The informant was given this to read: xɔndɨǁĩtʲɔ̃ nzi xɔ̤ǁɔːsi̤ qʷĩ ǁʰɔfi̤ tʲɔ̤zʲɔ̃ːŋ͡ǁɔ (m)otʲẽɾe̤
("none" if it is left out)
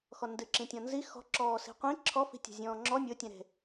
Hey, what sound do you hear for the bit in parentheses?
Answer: mʲ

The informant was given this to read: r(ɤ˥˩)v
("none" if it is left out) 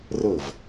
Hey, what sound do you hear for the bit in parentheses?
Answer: ɤ˥˩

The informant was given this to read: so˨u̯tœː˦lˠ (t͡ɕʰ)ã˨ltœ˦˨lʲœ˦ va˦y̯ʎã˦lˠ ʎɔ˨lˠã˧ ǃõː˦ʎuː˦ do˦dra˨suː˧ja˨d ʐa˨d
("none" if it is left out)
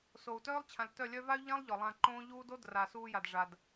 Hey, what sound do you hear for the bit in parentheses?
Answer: t͡ɕʰ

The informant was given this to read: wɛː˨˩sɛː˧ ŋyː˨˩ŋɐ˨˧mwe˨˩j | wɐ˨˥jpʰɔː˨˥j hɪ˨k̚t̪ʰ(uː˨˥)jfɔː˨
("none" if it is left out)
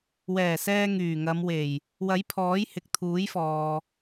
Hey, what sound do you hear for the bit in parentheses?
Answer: uː˨˥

